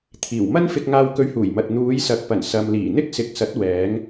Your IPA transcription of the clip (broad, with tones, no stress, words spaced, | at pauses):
t̪ʰiː˨˩wmɐ˥nfɪ˧k̚ ŋaː˧wkɵ˧ɥhuː˨˩jmɐ˨t̚ n̪uː˨˧jsɐ˨k̚pɐ˨˩n sɐ˨m liː˨˩n̪ɪ˥k̚sɪ˨˥k̚sɐ˨˥t̚ wɛː˨˧ŋ